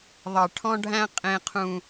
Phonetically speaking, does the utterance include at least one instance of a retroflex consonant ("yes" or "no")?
yes